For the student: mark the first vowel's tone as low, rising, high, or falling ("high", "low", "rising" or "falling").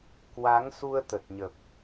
rising